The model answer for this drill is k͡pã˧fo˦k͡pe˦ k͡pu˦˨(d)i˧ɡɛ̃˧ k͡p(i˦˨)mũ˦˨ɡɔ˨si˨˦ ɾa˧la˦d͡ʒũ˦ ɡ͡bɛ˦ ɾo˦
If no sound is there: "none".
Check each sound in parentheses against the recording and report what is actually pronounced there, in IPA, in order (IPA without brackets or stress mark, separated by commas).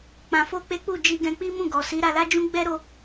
d͡ʒ, i˦